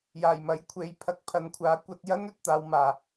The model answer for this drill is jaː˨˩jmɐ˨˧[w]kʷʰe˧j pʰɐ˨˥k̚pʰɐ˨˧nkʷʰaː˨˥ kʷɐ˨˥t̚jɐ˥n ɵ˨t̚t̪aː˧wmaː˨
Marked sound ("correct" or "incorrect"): incorrect